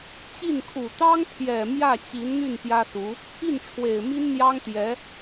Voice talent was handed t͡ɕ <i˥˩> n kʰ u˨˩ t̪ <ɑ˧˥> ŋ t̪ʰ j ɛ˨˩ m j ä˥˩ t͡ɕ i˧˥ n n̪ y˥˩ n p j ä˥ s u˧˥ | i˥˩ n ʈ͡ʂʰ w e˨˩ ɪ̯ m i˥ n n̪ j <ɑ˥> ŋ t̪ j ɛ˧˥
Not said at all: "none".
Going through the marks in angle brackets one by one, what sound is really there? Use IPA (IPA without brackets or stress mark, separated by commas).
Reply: i˥˩, ɑ˥, ɑ˥